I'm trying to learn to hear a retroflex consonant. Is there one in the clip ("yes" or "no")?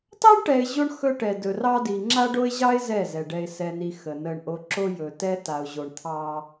yes